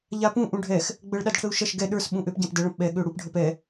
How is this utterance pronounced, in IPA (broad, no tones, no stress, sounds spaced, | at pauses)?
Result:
ʎ a p ũ ʔ ũ ɖʱ ɛ x | ɡ͡b ə ɭ ɗ a d ʈʰ ə u̯ ʃ ɐ ʃ ɡ ɛ ɗ ə˞ s ɓ ũ ʔ ø p ɟ ɐ̃ p d ə ɭ ɐ̃ p ɓ ɛ ɠ ø ɽ u p ɖʱ ə p ɛ